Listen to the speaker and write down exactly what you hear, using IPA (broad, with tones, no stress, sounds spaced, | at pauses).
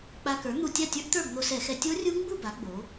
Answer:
k͡p a˧ k ə˞˩˥ n̪ u˧ tʲ a˥˨ tʲ ə˞˦˥ ʔ t̪ ə˞˥˨ b n̪ o˧ s ɛ˧˩˧ x ɛ˧˩˧ tʲ o˦˥ rʲ u˦˥ ŋ ɡ͡b u˥˨ b a˩˥ ɡ͡b o˩˥